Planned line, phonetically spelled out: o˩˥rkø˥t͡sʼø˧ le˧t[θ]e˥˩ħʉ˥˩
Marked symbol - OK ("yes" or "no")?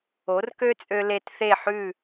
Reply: yes